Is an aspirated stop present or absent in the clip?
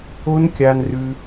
absent